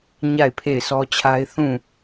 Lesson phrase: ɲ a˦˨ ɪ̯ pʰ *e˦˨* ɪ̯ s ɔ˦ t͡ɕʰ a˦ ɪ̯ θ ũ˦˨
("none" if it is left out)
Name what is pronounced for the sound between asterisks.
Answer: e˦˨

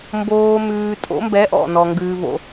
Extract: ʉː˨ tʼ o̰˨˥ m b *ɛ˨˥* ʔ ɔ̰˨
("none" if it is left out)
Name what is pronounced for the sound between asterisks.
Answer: ɛ˨˥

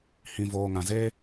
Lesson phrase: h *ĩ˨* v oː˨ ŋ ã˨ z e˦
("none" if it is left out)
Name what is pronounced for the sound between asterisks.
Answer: ĩ˨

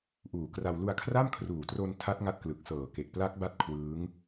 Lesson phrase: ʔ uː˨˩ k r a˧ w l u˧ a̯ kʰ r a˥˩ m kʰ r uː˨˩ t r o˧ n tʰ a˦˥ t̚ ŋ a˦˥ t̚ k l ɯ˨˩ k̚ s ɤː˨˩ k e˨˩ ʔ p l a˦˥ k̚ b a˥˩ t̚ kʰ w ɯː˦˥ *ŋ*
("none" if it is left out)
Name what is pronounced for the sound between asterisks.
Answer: ŋ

